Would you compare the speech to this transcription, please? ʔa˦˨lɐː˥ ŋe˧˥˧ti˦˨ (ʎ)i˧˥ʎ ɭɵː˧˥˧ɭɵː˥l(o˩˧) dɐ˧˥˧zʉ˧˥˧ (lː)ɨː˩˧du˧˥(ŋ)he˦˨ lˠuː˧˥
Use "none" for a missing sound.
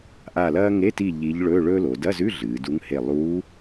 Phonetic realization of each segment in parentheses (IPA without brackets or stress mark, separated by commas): ʎ, o˩˧, ɮ, ŋ